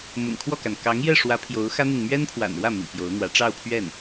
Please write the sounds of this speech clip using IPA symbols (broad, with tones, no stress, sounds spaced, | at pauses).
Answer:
m ʊ̰˨˩ ŋ kʰ w ɔ˥˩ k a˩ n k ɑ˧˥ ŋ j ɛ˥˩ ʂ w ä˧˥ pʰ j o˧˥ ʊ̯ x ä˥ n̪ i˨ n m ɥ ɛ˥ n pʰ w a̰˨˩ n ɻ w ä˥˩ m ḭ˨˩ p j o˧˥ ʊ̯ n̪ w ä˧˥ ʈ͡ʂ ɑ˥˧ ʊ̯ pʰ ɥ ɛ˥˩ n